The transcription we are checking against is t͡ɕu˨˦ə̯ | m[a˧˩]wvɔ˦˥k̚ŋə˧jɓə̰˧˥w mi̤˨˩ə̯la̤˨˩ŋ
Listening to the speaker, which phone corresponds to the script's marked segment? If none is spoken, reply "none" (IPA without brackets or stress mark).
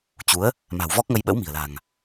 a̤˨˩